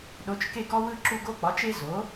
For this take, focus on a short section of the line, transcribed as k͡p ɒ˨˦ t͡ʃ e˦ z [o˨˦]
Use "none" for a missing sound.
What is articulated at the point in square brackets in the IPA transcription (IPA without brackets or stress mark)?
o˨˦